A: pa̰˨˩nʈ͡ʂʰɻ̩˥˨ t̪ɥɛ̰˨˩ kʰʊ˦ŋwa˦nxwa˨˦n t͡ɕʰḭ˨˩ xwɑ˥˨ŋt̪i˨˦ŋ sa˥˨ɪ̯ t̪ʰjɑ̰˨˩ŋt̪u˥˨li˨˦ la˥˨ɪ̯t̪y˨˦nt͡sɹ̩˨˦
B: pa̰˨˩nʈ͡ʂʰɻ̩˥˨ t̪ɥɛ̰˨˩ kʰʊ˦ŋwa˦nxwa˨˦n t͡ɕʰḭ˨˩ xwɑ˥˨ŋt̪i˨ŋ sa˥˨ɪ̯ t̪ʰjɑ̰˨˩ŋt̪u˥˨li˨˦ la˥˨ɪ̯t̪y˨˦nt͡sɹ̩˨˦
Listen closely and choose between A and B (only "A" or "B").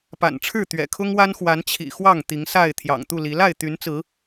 A